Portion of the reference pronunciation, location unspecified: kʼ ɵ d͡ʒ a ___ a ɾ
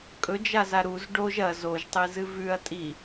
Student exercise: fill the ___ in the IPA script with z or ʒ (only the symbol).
z